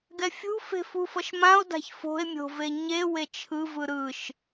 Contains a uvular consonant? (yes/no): no